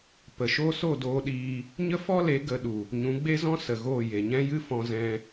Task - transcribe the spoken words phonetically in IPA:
p ə˨ ʃ o˦ s o˦˨ d oː˧ ɗ iː˧ | ɲ ə˦ f ɔ˦ l e˨˦ ɡ ə˨˦ ɗ u˨ | ɲ ũ˨˦ ɡ͡b e˦ z ɔ̃˦ s ə˨ ɣ oː˦˨ j e˨ ɲ ɛ̃˦ j ɨ˦ f ɔ̃˦ z ɛ̃˦

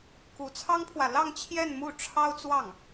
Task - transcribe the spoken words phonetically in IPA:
k u˧˥ t͡sʰ ɑ˥ ŋ pʰ w ä˨ l ɑ˥˧ ŋ t͡ɕʰ j ɛ˥˧ n m u˥˩ ʈ͡ʂʰ ɑ˥ ʊ̯ t͡s w ɑ˥˩ ŋ

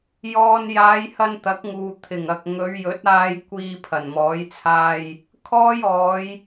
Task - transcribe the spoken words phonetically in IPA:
j ɔː˨ n j aː˨˧ j h ɐ˧ n t̪ ɐ˨˥ k̚ ŋ uː˨ t̪ʰ ɪ˨˩ ŋ ɐ˨ k̚ ŋ ɵ˨˧ ɥ j ɵ˨˥ t̚ aː˧ j kʷ iː˧ pʰ ɐ˨˩ n m ɔː˨˥ j t͡sʰ aː˧ j | kʰ ɔː˥ j ɔː˨˧ j

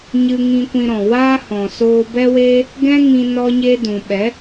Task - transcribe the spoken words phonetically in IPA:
ɲ ɨ˧ ŋ ĩ˧ kʷ ĩ˧ ɾ ɔ̃˨ w aː˦ h ɔ̃˨ s oː˧ b ɛ˦ w eː˦ | ɡ ɛ̃˦ ŋ ĩ˧ n ɔ˧ ɲ e˧ d ũ˨ ɓ ɛ˨˦

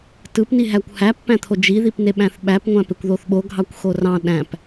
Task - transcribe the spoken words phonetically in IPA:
t ɯ p n i ɦ æ kʷ h æ pː æ̃ t̪ʰ o d͡ʒ i ð i p n e ɓ æ̃ θ ɓ æ p ŋʷ æ̃ p e kʷ ð o θ ɓ o ɡʱ ɑ kʷ x o r ɑ̃ ɗ æ̃ p

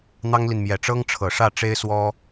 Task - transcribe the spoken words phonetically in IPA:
n̪ ɑ˥ ŋ l i˨ n m j ɛ˨˩ ʈ͡ʂ ɤ˥ ŋ ʈ͡ʂʰ ɤ˨˩ ʂ ä˥˩ ʈ͡ʂ e˥ ɪ̯ s w ɔ˥

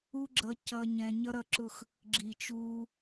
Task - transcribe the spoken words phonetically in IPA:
u˦ ɡ͡ǁ ʌ˧ c ʌː˧ ɲ ɛ̃ː˧ ɲ ʌ˦ ɾ ʌ˦˨ ǁ ʊ˦˨ x | ɡ͡ǁ i˨ t͡ʃ uː˧

